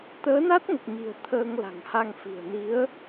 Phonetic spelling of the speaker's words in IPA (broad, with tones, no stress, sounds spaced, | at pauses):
t̪ əː˨˦ n a˦˥ t̚ ŋ ə˨˩ p̚ ɲ i̤˨˩ ə̯ t̪ʰ əː˧ ŋ l a̤˨˩ ŋ h a˧ ŋ f i̤˨˩ ə̯ n i˨˦ ə̯